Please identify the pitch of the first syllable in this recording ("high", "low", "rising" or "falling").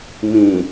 low